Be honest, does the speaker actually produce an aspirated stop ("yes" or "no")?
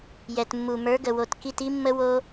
no